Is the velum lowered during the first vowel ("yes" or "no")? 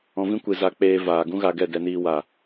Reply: yes